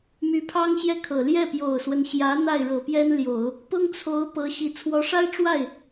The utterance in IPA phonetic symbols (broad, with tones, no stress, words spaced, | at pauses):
my˧˥pʰɑ˥ŋɕjɛ˥˩kʰɤ˨˩ ljɛ˥˩pjo˨˩ʊ̯swə˦n ɕjä˧˥ n̪a˥˩ɪ̯ɻɤ˨˩pjɛ˥nljo˨˩˦ʊ̯ | pʊ˥ŋt͡sʰo˧˥ʊ̯ pɤ˧˥ɕi˨˩ t͡sʰwɔ˧˥ʂa˥ɪ̯ʈ͡ʂwa˥˩ɪ̯